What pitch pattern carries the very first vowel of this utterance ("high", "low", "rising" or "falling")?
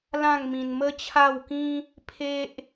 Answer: falling